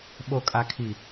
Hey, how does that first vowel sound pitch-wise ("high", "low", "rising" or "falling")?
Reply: low